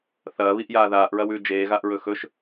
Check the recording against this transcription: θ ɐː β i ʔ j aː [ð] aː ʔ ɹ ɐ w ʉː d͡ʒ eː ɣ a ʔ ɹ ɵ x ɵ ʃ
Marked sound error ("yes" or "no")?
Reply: no